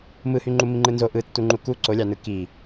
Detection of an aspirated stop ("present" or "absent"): absent